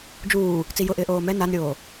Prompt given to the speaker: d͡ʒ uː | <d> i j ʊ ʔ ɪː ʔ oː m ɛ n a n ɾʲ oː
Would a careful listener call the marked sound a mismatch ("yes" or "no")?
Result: yes